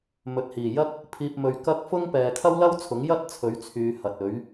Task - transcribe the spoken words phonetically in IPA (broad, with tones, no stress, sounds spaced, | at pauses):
m ɵ˨ t̚ h iː˨˩ j ɐ˥ k̚ | pʰ iː˨ p̚ m ɵ˨ ɥ k ɐ˥ k̚ f ʊ˥ ŋ p ɛː˨ kʰ ɐ˥ w l ɐ˥ w t͡sʰ ʊ˨˥ ŋ j ɐ˥ t̚ t͡sʰ ɵ˨˥ ɥ t͡sʰ yː˨˧ h ɐ˨ t̚ ɵ˨˥ ɥ